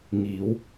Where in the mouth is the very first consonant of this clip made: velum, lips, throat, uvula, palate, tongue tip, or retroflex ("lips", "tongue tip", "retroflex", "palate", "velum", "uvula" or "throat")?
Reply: velum